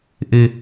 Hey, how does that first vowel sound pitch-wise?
low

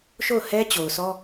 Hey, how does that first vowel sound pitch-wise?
falling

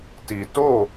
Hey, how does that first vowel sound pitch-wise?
low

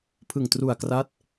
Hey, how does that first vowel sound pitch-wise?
low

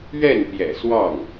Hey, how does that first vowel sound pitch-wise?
falling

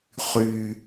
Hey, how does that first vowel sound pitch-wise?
low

